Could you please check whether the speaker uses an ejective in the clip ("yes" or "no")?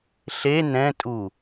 yes